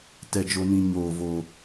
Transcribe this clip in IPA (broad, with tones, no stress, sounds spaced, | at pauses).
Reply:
t ɛ˦ d͡ʒ o˦ n ĩ˦ ɲ oː˧ v oː˧